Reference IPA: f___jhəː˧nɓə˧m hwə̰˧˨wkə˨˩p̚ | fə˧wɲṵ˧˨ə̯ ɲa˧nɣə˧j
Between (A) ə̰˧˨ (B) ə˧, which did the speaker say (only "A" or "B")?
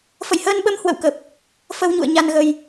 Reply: A